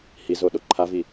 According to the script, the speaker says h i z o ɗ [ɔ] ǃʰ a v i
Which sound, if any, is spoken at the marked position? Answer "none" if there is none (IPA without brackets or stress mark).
o